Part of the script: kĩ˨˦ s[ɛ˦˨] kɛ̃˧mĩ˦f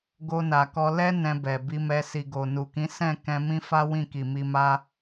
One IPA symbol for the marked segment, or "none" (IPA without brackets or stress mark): ɛ̃˦˨